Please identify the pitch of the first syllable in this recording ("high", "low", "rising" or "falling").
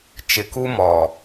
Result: low